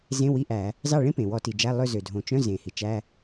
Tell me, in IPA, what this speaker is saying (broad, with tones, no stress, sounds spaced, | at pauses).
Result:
z ẽ˧˥˧ w i˧˥˧ ʔ æ˧˩˧ | z ɑ˦˨ ɭ ẽ˥ p ẽ˩ w ɔ˧˩˧ t i˩ d͡ʒ æ˧˥˧ lˠ ø˦˨ z ø˩ dʱ õ˩ t͡ʃ œ̃˧˥˧ z ẽ˩ h i˩ t͡ʃ æ˧˥˧